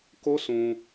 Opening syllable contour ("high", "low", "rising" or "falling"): high